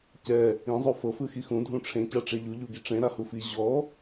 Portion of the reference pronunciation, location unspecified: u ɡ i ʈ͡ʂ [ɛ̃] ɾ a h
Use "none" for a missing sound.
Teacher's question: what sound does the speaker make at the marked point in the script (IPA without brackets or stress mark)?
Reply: ẽ